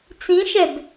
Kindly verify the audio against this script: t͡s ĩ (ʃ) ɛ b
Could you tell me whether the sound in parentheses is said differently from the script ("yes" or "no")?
no